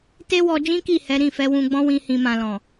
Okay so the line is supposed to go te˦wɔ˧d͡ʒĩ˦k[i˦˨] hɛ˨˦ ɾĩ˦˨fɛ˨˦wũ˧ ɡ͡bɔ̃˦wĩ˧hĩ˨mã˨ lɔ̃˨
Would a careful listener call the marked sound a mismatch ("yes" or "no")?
no